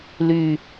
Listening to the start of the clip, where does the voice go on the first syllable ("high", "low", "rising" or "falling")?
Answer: falling